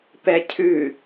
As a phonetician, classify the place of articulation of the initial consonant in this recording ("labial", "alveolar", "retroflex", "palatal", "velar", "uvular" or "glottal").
labial